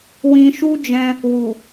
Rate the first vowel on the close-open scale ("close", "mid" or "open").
close